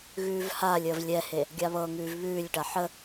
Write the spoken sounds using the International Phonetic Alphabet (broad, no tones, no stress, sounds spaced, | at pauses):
ɣ ʉː v h aː lʲ əː v lʲ ɛ h e | ɡʲ a β ɤ ŋ ʉː v β ʉː lʲ ʈ a ħ ə